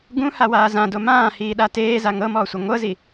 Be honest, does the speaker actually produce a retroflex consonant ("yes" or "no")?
no